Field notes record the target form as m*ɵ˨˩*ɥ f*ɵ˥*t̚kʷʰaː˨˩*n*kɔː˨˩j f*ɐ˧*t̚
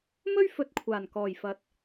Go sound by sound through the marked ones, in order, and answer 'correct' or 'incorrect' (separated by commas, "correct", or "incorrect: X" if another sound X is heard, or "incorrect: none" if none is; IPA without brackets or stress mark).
incorrect: ɵ˥, incorrect: ɵ˧, correct, incorrect: ɐ˨˥